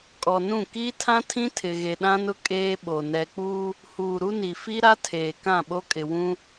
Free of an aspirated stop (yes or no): no